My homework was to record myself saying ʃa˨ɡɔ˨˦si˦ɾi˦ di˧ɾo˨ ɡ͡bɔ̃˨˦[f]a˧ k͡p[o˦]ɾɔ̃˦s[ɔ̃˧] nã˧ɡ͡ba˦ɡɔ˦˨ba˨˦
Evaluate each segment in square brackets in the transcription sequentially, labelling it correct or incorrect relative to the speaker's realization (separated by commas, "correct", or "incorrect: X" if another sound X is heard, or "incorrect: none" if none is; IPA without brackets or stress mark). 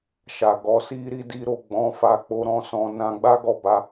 correct, incorrect: o˧, correct